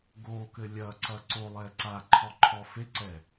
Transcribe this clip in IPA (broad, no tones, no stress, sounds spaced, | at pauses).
ɡ o k ɘ lʲ ɐ ǀ ɐ ǀ o lˠ ɛ ǀ a ǃʰ ɔ ǃʰ ɔ f e ǀ ɛ